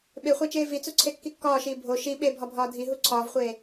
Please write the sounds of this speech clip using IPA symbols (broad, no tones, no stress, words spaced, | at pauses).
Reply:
ɓeχʷæt͡ʃeː vit͡suǀʰekːi kːɒːʃiː bʱo ʃi ɓebʱɒbʱɒː dʱiɦu ǀʰɒːvχʷeː